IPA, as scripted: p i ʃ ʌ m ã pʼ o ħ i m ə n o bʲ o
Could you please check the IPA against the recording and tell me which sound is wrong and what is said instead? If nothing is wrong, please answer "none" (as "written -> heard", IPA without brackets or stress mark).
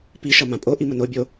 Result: ħ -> ʔ